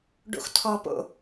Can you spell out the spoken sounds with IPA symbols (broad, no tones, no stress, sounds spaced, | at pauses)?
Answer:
ɖ o̰ x tʰ ɔ p o̰